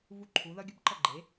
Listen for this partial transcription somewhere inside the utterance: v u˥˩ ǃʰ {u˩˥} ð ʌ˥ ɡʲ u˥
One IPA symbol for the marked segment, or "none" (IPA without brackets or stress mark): u˩˥